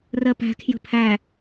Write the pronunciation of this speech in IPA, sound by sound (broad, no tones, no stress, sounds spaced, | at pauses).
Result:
r ɜ p æ̤ kʰ j ə̤ pʰ æ